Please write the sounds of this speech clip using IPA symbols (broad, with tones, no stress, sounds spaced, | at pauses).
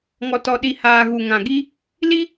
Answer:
ŋ ɔ˨ t ɔ˨ ɗ i˨ h aː˨ ɣ u˨ ŋ ã˨ ɡ i˦ | l i˦